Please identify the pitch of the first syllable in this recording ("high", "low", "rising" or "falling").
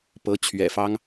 rising